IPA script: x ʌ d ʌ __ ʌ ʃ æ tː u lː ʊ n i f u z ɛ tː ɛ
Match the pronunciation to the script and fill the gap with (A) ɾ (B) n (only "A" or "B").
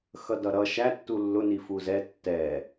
A